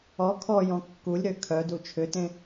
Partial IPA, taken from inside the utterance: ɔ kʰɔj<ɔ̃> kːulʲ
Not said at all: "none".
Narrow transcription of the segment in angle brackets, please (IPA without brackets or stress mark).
ɔ̃